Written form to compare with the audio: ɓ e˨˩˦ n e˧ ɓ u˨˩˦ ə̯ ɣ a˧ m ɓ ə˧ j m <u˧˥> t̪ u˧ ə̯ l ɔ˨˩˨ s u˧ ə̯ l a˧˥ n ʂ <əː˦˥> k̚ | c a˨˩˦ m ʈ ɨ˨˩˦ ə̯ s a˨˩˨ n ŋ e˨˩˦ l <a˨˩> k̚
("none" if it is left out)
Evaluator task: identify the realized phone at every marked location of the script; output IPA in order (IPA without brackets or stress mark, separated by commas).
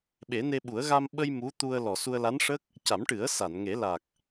u˧˥, ə˦˥, a˨˩